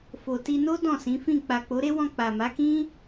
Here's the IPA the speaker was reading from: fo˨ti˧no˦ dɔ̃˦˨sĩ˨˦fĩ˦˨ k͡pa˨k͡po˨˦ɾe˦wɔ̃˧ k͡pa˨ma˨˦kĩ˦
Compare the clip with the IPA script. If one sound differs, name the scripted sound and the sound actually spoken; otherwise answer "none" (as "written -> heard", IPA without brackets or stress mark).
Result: none